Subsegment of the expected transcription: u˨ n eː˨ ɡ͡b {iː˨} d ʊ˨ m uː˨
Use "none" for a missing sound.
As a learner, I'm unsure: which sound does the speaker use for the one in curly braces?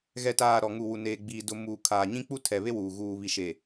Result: iː˨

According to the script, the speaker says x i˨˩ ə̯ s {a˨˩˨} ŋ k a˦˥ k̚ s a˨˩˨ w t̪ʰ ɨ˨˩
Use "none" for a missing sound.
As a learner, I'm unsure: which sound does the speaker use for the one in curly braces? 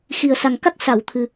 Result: a˨˩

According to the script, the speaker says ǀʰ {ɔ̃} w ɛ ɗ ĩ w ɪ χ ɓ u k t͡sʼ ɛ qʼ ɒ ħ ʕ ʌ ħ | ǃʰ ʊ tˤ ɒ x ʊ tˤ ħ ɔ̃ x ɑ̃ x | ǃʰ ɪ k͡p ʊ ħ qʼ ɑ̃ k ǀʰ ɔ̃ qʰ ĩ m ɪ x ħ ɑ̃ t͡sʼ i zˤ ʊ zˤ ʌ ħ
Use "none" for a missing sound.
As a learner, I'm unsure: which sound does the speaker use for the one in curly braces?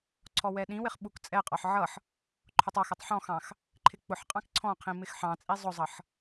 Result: ɔ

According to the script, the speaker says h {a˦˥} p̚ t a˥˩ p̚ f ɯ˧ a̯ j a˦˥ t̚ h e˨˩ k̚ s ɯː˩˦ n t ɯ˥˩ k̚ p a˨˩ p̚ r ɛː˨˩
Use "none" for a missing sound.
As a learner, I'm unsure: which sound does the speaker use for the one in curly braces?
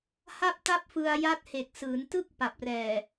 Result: a˥˩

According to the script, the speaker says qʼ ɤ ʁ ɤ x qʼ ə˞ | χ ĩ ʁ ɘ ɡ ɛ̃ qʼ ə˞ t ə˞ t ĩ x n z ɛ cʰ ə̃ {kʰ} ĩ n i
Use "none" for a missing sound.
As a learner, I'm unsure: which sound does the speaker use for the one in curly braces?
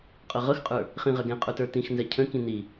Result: k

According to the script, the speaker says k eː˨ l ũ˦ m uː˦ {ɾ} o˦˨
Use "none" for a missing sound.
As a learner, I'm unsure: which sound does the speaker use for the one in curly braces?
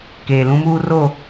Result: r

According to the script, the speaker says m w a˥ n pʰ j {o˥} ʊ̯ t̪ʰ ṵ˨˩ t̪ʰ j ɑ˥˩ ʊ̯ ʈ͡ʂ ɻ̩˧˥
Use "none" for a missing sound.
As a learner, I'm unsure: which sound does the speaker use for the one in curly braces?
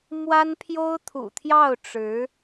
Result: o˥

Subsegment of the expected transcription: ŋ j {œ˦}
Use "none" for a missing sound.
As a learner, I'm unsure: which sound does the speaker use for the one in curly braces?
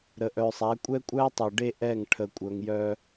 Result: œ˦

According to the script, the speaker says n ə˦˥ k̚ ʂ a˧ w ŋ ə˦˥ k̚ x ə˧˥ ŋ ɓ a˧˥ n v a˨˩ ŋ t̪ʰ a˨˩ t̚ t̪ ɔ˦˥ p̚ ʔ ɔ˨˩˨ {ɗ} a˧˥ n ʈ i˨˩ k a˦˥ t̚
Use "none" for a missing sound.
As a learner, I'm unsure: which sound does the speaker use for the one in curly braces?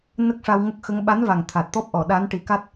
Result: ɗ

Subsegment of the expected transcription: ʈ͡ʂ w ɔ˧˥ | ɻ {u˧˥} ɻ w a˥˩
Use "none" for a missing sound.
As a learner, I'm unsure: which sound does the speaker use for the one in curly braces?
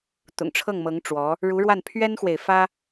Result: u˧˥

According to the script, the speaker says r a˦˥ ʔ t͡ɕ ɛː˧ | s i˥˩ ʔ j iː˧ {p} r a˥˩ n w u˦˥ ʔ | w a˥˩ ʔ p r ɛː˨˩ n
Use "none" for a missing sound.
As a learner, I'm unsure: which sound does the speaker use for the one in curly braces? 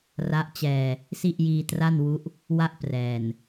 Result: t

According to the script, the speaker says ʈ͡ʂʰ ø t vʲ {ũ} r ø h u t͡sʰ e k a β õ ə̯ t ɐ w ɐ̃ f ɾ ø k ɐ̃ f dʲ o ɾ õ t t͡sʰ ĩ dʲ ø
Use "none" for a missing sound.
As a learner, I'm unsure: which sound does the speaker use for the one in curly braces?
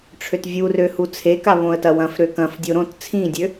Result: u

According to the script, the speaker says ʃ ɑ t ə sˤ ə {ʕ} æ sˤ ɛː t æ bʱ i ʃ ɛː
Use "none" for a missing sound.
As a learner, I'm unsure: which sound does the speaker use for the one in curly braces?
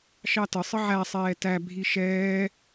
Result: ʕ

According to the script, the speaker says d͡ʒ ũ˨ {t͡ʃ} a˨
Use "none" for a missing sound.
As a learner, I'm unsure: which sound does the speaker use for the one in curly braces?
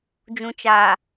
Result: t͡ʃ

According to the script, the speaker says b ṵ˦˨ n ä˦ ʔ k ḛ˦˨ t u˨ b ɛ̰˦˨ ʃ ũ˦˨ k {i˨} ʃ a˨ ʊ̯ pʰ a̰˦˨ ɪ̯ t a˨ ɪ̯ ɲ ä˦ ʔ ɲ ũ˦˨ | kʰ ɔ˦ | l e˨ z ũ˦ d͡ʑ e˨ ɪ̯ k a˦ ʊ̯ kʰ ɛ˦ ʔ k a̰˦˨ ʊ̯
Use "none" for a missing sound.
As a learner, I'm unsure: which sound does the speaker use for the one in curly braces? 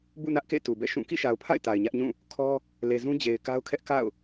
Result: ḭ˦˨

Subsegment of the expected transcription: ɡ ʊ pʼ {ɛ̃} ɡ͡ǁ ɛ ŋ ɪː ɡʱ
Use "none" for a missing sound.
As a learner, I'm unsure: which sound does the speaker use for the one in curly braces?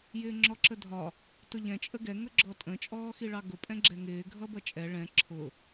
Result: ɛ̃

